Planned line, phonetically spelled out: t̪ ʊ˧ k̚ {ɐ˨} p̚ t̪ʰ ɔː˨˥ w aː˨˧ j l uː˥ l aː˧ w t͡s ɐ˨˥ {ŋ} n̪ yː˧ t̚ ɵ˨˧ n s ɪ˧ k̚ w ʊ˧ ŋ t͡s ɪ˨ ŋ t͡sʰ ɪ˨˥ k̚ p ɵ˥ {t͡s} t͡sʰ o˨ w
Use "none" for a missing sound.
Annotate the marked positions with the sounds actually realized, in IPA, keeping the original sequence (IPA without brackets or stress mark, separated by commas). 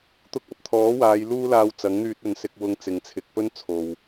ɐ˨, ŋ, n